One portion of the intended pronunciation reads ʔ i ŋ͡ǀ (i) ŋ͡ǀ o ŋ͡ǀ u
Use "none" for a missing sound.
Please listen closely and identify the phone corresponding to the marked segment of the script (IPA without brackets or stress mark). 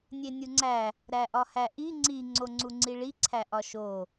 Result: i